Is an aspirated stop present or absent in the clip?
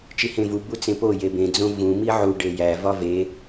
absent